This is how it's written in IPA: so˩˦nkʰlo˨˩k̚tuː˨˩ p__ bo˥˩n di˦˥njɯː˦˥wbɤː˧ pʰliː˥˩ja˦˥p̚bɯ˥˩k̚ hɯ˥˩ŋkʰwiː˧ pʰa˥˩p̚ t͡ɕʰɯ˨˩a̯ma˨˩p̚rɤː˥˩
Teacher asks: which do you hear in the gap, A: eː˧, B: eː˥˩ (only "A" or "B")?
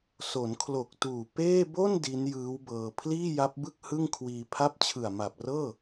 B